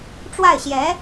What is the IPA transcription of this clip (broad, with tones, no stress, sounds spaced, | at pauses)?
ʈ͡ʂ w a˥˩ ɪ̯ ɕ j ɛ˧˥